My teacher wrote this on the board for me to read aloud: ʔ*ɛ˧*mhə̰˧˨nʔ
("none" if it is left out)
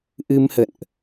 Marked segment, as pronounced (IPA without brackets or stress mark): ɨ˧